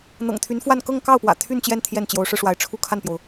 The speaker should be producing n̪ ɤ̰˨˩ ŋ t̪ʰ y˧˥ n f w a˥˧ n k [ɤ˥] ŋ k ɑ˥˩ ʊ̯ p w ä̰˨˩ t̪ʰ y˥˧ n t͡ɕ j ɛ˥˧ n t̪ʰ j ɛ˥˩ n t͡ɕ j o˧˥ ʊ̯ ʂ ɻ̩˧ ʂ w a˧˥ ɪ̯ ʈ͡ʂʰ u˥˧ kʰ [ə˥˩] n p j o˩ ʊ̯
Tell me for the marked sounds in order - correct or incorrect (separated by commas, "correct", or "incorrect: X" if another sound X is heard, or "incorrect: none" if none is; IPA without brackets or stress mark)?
incorrect: ɤ˥˧, incorrect: a˥˩